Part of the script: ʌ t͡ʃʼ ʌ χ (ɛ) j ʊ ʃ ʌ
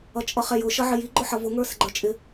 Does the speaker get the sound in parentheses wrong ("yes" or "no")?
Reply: no